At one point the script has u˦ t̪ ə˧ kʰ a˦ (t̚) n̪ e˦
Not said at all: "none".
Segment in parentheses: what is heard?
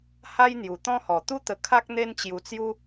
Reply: k̚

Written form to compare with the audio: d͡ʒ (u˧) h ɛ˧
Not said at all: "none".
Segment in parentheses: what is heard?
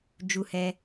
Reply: u˧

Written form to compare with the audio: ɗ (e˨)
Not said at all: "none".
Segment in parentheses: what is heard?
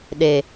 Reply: e˨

